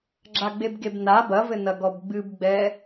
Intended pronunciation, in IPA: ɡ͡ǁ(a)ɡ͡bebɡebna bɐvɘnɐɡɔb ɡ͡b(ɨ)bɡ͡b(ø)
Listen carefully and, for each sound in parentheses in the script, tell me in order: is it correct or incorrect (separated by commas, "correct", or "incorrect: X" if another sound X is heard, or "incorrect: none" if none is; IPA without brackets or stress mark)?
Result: correct, correct, incorrect: ɛ